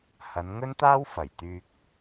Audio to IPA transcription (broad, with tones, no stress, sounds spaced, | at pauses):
h ɐ˨˧ n ŋ ɵ˥ n t̪ aː˥ w f ɐ˨˩ j t̪ yː˧ k̚